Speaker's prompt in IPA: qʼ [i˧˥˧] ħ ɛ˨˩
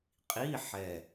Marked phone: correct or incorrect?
correct